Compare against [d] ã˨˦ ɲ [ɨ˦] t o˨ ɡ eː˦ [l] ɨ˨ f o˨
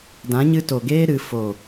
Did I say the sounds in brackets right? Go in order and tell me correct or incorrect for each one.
correct, incorrect, incorrect

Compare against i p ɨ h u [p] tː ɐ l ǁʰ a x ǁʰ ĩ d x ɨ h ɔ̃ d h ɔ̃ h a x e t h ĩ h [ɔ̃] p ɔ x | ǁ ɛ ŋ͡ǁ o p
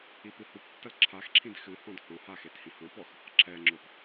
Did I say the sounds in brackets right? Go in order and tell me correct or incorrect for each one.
correct, correct

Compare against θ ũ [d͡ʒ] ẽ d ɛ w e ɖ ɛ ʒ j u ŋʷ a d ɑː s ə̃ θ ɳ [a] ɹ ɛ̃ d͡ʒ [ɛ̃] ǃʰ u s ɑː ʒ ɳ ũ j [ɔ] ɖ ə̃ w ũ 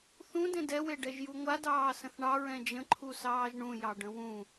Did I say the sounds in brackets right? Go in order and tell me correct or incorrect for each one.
incorrect, incorrect, incorrect, incorrect

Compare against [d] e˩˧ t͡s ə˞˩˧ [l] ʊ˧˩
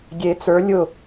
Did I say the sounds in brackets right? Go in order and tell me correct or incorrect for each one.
incorrect, incorrect

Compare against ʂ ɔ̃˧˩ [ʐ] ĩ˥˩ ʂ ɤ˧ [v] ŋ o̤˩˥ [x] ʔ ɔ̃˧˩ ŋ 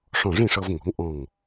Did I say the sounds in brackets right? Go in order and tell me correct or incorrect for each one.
correct, correct, incorrect

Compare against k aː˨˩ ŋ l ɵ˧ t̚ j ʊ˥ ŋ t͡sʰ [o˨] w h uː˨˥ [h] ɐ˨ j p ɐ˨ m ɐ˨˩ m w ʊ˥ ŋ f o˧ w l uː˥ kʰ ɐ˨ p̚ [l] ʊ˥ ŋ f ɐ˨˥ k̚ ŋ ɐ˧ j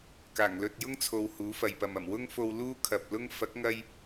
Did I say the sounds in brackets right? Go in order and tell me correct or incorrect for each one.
correct, incorrect, correct

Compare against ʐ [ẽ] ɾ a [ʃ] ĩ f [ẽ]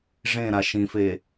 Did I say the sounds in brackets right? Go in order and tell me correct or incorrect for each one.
correct, correct, incorrect

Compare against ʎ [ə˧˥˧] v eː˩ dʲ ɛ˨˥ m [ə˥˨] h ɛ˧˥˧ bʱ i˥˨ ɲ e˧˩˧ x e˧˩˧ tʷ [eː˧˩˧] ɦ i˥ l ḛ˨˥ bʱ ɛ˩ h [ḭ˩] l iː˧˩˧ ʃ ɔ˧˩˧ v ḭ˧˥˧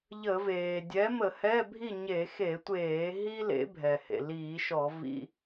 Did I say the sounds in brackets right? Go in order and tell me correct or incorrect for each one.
incorrect, incorrect, correct, incorrect

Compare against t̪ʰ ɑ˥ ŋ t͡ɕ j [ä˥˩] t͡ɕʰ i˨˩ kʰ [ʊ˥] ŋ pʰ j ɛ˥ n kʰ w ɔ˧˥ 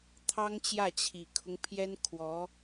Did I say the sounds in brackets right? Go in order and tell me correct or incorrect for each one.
correct, incorrect

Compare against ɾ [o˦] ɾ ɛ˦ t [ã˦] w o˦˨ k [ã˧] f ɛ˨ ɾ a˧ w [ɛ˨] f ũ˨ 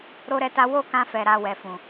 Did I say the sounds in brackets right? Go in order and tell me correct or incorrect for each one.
correct, incorrect, correct, correct

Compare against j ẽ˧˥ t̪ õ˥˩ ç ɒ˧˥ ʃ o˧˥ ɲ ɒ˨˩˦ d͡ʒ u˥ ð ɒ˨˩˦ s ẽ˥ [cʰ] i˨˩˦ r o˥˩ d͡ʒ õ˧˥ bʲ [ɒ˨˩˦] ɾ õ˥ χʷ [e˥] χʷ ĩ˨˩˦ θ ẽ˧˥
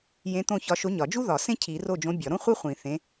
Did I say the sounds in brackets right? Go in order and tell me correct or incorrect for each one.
correct, correct, correct

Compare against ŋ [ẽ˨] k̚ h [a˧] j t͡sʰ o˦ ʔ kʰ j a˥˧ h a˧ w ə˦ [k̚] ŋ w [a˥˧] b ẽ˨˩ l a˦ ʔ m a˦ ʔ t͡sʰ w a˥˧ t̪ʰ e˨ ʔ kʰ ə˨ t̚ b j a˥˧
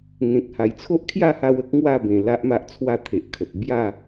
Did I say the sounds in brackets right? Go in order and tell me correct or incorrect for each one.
correct, incorrect, correct, correct

